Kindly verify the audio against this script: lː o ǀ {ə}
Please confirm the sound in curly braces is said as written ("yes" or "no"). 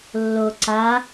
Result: no